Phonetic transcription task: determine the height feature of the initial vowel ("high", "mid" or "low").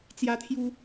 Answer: low